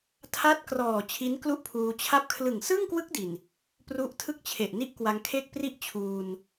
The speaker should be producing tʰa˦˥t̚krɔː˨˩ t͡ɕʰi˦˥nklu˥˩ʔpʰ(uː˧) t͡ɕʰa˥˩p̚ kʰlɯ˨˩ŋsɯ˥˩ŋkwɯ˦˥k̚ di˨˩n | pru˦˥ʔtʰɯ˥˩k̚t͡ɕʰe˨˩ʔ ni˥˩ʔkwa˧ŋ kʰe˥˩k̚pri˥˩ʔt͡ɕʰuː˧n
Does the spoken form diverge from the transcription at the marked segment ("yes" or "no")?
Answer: no